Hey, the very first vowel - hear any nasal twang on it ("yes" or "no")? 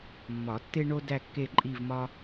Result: no